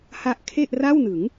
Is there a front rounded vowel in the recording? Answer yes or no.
no